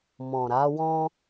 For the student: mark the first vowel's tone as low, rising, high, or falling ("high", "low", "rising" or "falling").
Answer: low